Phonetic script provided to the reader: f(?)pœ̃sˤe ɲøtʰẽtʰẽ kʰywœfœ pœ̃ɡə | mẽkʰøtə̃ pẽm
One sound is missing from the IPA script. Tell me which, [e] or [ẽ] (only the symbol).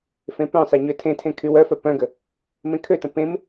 ẽ